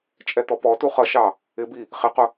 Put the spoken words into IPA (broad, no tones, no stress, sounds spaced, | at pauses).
t͡ʃʼ ɛ t̪ ɔ p ɔ t u χ ʌ ʃ ɑ | ɪ b i | χ ɪ q ʊ